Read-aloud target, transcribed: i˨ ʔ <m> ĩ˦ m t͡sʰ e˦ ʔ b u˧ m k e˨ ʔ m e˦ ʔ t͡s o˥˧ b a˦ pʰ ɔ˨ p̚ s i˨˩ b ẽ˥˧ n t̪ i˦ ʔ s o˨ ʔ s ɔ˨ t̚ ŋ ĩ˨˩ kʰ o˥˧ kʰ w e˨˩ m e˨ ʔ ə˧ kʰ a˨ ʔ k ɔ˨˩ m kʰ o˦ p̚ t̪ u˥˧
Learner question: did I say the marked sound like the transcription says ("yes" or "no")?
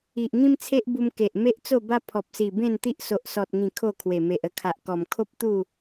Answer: no